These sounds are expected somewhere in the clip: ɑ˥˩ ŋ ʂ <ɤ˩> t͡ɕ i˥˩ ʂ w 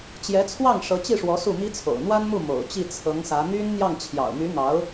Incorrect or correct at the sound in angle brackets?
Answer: incorrect: ɤ˧˥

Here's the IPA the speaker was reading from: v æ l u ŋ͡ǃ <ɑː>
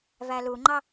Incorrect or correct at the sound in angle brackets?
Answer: incorrect: ɑ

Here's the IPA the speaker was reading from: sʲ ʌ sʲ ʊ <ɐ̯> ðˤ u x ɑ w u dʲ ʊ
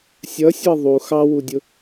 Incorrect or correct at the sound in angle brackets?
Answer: correct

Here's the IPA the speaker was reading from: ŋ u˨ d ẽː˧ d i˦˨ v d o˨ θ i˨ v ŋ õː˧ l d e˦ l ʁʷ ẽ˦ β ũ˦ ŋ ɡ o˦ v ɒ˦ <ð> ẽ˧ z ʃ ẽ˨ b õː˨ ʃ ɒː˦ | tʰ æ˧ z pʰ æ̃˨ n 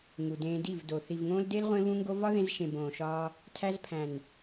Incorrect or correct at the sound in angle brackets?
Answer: correct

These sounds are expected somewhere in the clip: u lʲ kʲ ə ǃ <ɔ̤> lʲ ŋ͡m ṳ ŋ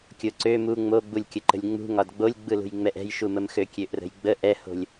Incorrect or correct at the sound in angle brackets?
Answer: incorrect: ə̤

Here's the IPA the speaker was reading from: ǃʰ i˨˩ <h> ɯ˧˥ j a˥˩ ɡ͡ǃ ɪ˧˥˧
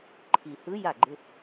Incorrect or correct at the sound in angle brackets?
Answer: correct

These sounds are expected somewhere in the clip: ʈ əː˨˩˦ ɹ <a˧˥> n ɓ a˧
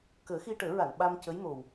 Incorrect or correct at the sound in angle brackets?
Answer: incorrect: a˨˩˨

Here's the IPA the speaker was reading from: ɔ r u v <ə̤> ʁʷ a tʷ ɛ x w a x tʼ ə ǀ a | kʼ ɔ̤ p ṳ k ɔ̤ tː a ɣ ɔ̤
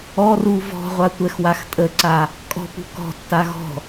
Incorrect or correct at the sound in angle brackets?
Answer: incorrect: ɔ̤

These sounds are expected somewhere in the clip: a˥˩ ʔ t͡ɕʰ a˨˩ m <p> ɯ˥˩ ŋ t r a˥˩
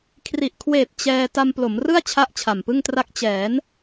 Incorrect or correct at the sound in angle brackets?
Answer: correct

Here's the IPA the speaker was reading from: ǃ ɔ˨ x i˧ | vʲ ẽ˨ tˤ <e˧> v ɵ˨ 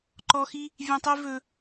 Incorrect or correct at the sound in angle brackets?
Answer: correct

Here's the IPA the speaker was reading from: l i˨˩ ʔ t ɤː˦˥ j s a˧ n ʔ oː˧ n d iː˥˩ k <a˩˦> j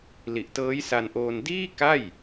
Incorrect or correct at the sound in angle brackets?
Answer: incorrect: a˥˩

